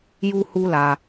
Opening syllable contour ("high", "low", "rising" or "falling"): high